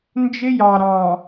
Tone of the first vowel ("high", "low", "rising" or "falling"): high